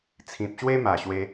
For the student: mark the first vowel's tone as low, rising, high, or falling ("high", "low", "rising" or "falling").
low